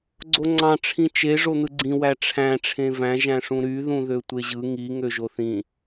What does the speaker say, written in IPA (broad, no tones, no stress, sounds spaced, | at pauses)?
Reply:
ɡ͡ǀ o ŋ͡ǀ ɑ̃ ʈ͡ʂʰ ĩ t͡ʃ e ʐ o n̪ ɯ ɡ͡ǀ ĩ w æ ʈ͡ʂʰ æ̃ ʈ͡ʂʰ ẽ v æ̃ ʒ æ̃ ʂ ũ ɾ y ð ũ ð ø tʷ e ʑ ɯ ŋ i ŋ ø ʒ o θ ĩ